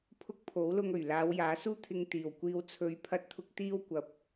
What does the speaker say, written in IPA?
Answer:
pʰ ʊ˥ k̚ pʰ o˨˥ w l ʊ˧ ŋ ɵ˨˩ ɥ l aː˨˧ w j aː˨˥ s uː˥ t̪ʰ ɪ˧ ŋ t̪ iː˨˩ w kʷ iː˧ w t͡sʰ ɵ˨˧ ɥ pʰ ɐ˧ t̚ t̪ʰ ʊ˧ k̚ t̪ iː˥ w kʷ ɐ˨˥ p̚

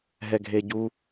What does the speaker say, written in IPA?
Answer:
ɦ ɛ ɡʱ e ɟ u

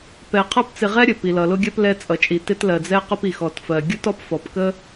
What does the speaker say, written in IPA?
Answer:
p ɛ˧ qʰ ʌ˥ p t͡s ɪ˧ ʁ ɛ˥ ɾʲ ə˩ p i˩ l ʌ˩ l ʊ˧ ɡʲ ɜ˧ p l ɛ˧ t͡sʼ ʌ˩ t͡ʃʼ i˩ t ɪ˧ t l ɜ˩ d͡z ɛ˧ q ʊ˧ p i˩ x ɔ˩ t f ɜ˩ ɡʲ ʊ˥ t ɔ˥ p f ɔ˩ p k ə˥

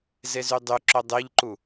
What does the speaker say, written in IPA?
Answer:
z e z y dˤ y ǁ œ dˤ e ʎ ǃ u

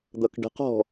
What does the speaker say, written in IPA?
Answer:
d̪ ʌ k ɖ ə̤ q ɔ̤

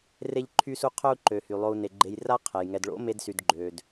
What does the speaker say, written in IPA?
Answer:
r e˦ ʎ ǃʰ y˦ s u˦ qʰ œ˦ u̯ ǃ ø˨ h y˨ lˠ o˧ u̯ n e˨ ɡ͡ǃ e˧ j r a˦ qʰ ɛ˨ j ŋ ɛ˨ d ɭ o̰˦ m e˧ d s y˨ d ɡ͡ǃ ø˨ d

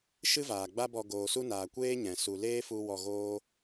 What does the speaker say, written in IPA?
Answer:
ʃ ɨ˦ v aː˨ ɡ͡b a˦ b ɔ˧ ɡ oː˨ s u˧ n aː˨ kʷ eː˦ ɲ ɛ̃˨ s u˨ l eː˦ f u˧ w ɔ˧ ɣ oː˦

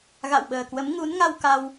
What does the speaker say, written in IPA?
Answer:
ɣ a̰˧˨ w ɓ əː˨˩ k w ə˨˦ m ŋ u˨˦ n ŋ a˧ w k a˧ w

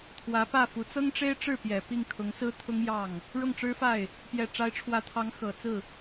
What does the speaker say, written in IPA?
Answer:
t̪ʰ w ä˧˥ p ä˥˩ f u˧˥ t͡s ɤ˥ ŋ ʈ͡ʂ e˥ ɪ̯ ʈ͡ʂ ɻ̩˥˩ p j ɛ˨˩ p i˥˩ ŋ kʰ ʊ˧˥ ŋ s ɹ̩˥ t̪ʰ ʊ˥ ŋ j ɑ˥˩ ŋ | ɻ ʊ˥˩ ŋ ʈ͡ʂ ɻ̩˥ f a˥˩ ɪ̯ | p j ɛ˨˩ ʈ͡ʂ a˧˥ ɪ̯ ʈ͡ʂʰ w ä˧˥ t̪ʰ ɑ˧˥ ŋ x ɤ˨˩ t͡s ɹ̩˥˩

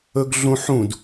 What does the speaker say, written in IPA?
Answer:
ɵ ɡ ɮ ũ ħ ũ d

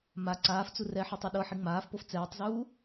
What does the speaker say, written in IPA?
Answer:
m a ǀ aː f t͡s u r ɛ ħ ɤ tˤ ɛ ɗ ɤ ħ i ŋ͡m aː f p o f t͡s ɛː tˤ z uː

